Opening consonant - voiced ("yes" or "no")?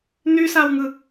yes